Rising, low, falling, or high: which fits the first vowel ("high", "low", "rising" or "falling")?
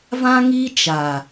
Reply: high